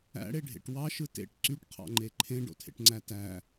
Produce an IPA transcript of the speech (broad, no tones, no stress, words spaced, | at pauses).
æ̰ɽeɖʱḛʈ wɑʃɯ tḛʈ ǀyʈqʰɑ̰ŋ͡ǃe ǃʰẽɖo̰tʰḛʈŋ͡ǀæ tæ